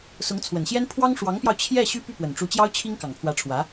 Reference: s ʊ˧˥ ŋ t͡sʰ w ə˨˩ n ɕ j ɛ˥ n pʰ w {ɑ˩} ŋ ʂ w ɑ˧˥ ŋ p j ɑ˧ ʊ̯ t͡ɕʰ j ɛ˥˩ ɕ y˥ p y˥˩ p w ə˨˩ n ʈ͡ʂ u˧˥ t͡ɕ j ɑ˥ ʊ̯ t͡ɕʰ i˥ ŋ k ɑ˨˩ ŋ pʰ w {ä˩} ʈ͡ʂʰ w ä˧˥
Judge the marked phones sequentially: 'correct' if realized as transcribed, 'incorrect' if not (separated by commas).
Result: incorrect, incorrect